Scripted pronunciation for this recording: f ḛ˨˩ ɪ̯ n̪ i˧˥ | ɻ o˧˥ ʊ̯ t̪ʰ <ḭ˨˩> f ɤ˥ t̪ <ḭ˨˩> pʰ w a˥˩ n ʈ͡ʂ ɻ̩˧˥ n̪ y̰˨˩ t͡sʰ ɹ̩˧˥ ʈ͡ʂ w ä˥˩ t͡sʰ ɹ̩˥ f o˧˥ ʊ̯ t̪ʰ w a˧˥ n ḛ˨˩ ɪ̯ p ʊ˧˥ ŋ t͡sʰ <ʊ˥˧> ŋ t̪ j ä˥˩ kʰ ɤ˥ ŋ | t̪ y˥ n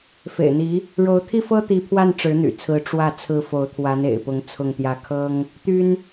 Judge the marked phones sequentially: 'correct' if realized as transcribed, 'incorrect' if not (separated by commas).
incorrect, incorrect, correct